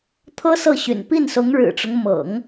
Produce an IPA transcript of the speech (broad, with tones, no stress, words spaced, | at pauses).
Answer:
t̪ʰɤ˥sɤ˥˩ɕy̰˨˩n pi˥˩nsʊ˧˥ŋɻɻ̩˨˩ʈ͡ʂʊ˦ŋ mɤ̰˨˩˦ŋ